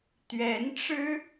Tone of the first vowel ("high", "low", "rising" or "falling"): rising